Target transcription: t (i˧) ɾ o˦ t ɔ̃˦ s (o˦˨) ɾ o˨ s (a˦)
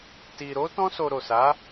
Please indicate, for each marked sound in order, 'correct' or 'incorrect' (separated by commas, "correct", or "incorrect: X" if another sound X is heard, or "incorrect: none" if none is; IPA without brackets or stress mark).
correct, incorrect: o˧, incorrect: a˨˦